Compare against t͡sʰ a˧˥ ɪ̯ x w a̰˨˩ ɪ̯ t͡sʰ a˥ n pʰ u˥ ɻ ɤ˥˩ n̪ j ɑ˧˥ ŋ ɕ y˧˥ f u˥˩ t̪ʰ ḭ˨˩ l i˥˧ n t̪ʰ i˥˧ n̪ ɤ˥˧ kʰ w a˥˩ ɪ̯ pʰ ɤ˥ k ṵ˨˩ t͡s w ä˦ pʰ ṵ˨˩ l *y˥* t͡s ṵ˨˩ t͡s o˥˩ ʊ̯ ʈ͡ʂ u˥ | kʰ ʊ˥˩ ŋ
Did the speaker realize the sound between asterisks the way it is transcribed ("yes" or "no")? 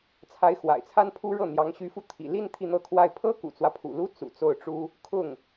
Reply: no